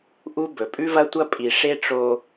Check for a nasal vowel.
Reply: absent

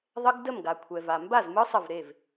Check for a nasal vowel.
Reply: absent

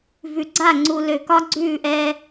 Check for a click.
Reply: present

